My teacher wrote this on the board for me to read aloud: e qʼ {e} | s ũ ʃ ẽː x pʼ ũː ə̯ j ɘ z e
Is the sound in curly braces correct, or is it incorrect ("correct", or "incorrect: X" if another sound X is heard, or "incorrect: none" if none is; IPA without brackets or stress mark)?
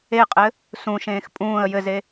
incorrect: ɘ